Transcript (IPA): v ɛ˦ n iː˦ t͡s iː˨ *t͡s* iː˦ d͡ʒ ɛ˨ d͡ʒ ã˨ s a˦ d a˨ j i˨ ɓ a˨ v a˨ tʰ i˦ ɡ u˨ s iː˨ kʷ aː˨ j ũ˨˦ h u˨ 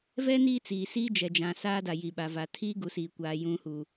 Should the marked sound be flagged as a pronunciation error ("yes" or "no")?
yes